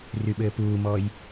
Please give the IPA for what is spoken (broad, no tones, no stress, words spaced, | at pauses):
ryɓɘːpuːmɔj